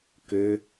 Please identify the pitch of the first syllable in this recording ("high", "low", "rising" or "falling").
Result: high